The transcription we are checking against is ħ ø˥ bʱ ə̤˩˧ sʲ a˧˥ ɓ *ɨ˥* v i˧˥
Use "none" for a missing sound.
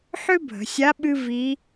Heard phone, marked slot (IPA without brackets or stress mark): ɨ˥